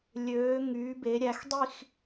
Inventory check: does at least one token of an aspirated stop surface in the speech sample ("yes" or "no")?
no